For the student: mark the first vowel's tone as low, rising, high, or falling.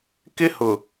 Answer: high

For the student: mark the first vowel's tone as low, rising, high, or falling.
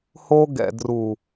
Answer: high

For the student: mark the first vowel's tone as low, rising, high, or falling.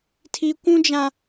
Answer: high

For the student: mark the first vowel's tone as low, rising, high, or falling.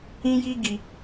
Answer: high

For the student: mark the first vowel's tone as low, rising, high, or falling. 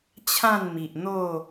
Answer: falling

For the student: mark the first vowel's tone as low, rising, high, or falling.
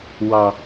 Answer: high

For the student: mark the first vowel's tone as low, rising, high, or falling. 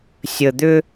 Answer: low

